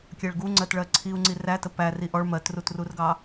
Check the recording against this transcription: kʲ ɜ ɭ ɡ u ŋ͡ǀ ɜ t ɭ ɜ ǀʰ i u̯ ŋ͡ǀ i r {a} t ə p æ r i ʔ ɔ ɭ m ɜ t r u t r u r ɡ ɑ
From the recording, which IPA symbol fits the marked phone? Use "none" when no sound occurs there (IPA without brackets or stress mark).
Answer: æ